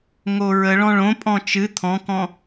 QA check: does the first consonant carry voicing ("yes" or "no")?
yes